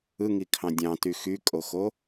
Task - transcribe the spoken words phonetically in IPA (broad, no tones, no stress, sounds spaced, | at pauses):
ɯ ŋ i kʰ ɑ̃ dʲ ɑ̃ t y x y kʼ o x o